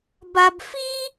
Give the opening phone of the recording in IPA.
b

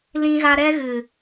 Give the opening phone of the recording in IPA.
l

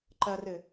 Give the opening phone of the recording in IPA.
ǃ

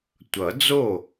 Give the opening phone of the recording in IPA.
tʷ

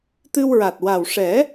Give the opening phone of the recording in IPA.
t̪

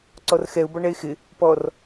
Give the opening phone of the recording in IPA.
ǀ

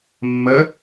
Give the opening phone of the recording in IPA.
mː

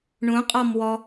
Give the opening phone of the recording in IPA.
ɳ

